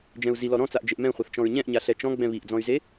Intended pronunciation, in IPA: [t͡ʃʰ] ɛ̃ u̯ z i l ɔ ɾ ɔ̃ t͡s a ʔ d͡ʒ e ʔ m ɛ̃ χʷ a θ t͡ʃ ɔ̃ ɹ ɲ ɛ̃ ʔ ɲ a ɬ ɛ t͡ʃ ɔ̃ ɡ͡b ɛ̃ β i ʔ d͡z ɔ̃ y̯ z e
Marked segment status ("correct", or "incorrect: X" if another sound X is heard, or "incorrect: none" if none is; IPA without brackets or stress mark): incorrect: d͡ʒ